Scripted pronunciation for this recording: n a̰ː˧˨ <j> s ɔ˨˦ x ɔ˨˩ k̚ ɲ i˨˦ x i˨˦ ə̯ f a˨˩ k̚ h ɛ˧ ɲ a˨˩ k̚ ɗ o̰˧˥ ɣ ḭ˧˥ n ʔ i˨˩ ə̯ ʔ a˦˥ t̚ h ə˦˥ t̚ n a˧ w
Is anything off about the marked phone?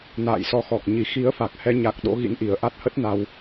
no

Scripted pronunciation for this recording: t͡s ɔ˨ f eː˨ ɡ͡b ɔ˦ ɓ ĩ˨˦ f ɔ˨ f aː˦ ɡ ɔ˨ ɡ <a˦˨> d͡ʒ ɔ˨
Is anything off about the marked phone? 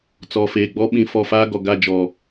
no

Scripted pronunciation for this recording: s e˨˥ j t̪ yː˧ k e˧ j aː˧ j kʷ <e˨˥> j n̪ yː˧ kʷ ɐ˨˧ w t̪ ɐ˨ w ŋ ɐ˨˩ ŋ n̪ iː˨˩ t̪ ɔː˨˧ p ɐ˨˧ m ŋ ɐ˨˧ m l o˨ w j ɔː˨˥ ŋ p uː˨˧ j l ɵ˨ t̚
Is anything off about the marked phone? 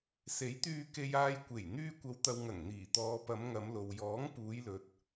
yes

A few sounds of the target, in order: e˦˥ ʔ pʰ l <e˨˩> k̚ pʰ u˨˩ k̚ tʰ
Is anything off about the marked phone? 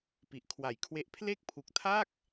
yes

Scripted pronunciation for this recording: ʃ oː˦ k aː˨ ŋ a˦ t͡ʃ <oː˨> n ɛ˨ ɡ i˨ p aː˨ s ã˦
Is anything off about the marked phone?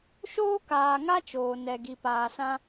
no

